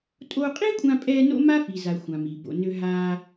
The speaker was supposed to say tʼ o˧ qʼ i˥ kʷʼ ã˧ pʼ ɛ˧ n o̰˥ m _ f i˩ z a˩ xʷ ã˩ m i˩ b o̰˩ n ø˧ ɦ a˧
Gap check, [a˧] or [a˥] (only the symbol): a˥